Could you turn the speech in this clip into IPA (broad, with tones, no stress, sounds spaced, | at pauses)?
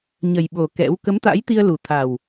ɲ ə˨˩ j ɓ o˨˩ k ɛ̰˧˥ w k ə˨˦ m t̪ a̰˧˥ j t̪ i˧ ə̯ l u˨˩ t̪ʰ a˨˩ w